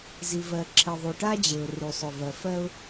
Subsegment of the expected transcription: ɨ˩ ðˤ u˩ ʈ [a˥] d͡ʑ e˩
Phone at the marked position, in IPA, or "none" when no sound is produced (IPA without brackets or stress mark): a˥